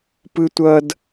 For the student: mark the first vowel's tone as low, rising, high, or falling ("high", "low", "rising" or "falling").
high